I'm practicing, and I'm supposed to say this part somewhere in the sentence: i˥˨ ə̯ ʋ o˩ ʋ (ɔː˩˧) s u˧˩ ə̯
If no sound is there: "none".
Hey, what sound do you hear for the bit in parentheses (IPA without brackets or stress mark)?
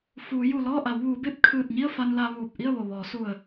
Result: ɔː˩˧